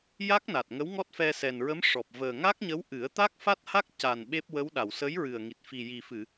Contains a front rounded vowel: no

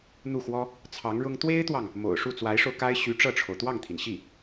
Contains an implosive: no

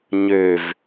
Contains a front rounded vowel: yes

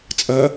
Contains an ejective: yes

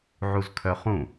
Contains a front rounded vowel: yes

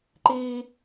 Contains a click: yes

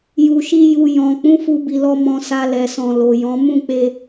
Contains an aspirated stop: no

